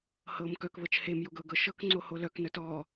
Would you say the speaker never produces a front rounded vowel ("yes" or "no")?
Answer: no